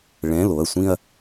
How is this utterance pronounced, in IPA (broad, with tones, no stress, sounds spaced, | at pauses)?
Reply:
ɭ ɛ̃˩˧˩ l o˩˧˩ ɐ̯ sʷ ĩ˥˧ ɐ̯